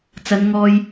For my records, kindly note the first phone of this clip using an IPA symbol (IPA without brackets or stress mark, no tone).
t͡s